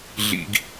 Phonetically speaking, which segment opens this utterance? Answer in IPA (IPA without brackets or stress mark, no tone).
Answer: ɮ